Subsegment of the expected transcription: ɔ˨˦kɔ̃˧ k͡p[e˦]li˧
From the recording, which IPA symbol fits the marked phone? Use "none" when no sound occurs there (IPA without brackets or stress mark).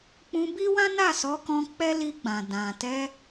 ɛ˦